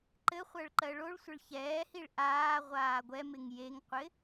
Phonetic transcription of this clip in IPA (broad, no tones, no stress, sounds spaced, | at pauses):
ǃ ɘ χʷ ɜ ɭ ǃ ɜ ɭ o ɭ sʷ ɪ ɭ ç ɛː h i ɭ ʔ aː ʁʷ aː ɡʷ ɛ m ɪ ŋ j e ŋ qʷ ɪ